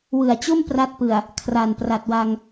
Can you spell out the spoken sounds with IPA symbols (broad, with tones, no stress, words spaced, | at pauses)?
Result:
wɯ˨˩a̯t͡ɕo˥˩m pra˥˩t̚pɯ˨˩a̯ | kʰra˨˩npra˨˩t̚wa˧ŋ